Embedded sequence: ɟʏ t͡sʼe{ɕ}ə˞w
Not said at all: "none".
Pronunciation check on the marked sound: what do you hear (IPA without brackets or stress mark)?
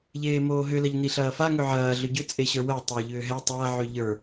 ɕ